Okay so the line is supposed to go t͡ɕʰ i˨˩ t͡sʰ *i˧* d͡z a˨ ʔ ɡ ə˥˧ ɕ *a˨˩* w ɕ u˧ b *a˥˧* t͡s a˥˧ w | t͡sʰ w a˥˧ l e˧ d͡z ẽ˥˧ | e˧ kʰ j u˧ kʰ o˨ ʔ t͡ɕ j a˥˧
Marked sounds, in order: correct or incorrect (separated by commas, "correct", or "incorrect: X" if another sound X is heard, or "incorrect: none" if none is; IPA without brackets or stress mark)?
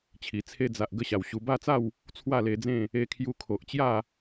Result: incorrect: e˧, correct, correct